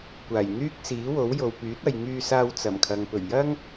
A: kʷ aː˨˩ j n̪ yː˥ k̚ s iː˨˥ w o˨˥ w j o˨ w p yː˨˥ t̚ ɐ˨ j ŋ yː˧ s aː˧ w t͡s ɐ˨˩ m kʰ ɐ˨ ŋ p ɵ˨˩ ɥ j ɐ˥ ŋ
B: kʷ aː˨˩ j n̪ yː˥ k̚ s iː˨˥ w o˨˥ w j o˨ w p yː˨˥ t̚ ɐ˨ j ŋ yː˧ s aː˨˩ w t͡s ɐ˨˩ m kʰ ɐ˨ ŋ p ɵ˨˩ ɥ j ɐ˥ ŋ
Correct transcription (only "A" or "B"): A